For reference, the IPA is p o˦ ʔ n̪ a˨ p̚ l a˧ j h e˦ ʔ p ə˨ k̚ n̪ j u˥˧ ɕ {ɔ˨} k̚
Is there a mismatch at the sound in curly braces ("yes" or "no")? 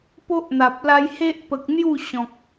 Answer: yes